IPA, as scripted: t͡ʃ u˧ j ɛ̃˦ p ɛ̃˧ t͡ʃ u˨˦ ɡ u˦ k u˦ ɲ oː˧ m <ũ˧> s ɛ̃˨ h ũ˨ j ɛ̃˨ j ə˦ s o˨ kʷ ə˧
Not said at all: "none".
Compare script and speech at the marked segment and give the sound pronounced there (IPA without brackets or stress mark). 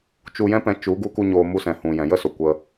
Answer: u˧